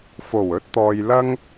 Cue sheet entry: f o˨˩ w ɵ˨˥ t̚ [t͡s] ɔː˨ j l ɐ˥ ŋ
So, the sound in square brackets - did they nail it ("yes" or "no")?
no